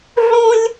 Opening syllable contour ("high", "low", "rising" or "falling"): high